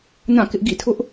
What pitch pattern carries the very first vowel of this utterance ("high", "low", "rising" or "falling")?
falling